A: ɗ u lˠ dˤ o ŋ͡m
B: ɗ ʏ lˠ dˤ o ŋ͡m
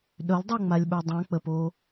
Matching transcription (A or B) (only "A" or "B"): B